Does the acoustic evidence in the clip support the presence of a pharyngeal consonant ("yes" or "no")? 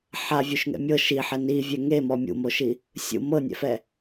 yes